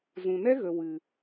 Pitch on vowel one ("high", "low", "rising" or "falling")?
low